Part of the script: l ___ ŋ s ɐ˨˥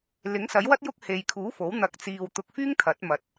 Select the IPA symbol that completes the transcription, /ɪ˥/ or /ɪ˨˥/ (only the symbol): ɪ˨˥